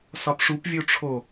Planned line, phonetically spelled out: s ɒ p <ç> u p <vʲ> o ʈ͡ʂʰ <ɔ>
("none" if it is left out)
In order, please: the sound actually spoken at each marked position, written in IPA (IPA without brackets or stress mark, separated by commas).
ʂ, vʲ, o